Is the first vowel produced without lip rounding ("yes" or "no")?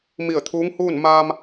yes